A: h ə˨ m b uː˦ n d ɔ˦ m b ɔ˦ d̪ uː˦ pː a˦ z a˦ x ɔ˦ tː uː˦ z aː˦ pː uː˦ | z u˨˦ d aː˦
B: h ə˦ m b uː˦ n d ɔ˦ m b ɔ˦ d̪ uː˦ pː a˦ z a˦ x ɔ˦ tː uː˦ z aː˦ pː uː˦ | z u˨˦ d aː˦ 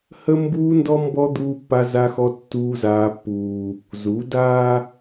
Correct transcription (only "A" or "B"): B